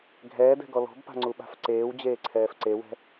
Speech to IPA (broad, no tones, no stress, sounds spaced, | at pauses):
ɡʱ ɛː d ɛ̤ ɡ ɔ l ɔ̤ b p a̤ ŋ͡ǀ u ɓ a̤ f ǀ eː w d͡ʑ eː ǀʰ ɛː f ǀ e w ɛ̤